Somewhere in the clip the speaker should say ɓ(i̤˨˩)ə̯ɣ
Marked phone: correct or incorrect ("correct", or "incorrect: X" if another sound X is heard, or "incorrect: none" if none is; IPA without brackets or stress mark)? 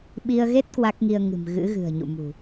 incorrect: i˧